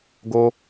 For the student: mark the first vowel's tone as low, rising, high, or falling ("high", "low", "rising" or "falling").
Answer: high